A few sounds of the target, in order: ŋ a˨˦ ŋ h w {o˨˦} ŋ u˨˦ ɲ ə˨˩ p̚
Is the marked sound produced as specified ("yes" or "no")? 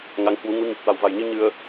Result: no